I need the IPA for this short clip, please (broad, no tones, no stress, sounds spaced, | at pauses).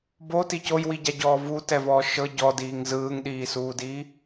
b o t i c o j w i ɟ a ɟ ɔː v u t ɛ v ɔː ʃ ɤ ɟ ɔ d iː ŋ z ɯː ŋ ɗ iː s uː d i